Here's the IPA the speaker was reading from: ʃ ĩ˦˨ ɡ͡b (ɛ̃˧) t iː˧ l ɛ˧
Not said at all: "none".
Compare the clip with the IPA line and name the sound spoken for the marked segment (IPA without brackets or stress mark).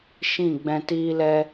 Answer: ɛ̃˧